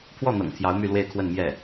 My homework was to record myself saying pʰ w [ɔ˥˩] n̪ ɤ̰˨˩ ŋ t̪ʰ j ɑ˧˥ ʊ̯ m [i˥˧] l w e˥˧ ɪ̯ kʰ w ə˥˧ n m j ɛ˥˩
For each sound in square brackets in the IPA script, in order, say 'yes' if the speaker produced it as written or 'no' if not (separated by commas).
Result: yes, no